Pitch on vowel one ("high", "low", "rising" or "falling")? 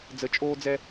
rising